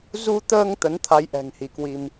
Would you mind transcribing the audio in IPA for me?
z u˧ t̪ əː˧ ŋ t̪ ə˨˦ n t̪ʰ a˨˦ j ʔ ɛ̤˨˩ ŋ h i˨˦ k w i˧ m

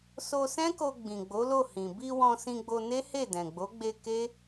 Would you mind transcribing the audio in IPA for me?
s o˧ s ɛ̃˦ k o˧ ɡ͡b ĩ˨ ɡ͡b o˨˦ l o˦˨ h ĩ˨ b i˧ w ɔ̃˧ s ĩ˧ ɡ͡b o˧ n e˦ h e˦˨ d ɛ̃˨ ɡ͡b o˨˦ ɡ͡b e˧ k e˦

